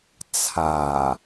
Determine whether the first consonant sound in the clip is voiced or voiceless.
voiceless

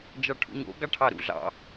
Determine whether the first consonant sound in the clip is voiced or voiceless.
voiced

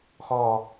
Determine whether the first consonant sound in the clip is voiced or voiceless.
voiceless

